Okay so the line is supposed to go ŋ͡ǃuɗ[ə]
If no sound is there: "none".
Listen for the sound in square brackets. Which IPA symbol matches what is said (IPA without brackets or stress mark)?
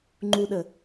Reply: ə